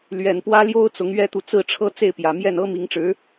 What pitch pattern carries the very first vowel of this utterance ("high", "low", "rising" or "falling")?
low